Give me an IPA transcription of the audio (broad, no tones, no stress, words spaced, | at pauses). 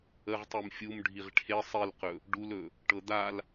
əʁtˤim fʲum ɖʱiʁʈʰe sˤilqɵ | ɖulɵ | ʈɤd̪al